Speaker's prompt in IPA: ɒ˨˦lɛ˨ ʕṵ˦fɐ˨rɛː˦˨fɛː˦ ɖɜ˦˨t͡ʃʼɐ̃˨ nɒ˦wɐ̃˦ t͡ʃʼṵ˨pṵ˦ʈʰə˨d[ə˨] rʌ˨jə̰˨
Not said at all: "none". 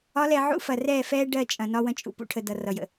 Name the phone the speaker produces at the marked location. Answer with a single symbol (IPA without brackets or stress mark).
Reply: ʌ˨